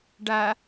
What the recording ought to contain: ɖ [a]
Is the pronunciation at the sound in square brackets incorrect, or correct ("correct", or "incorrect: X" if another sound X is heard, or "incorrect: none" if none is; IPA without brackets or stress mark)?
correct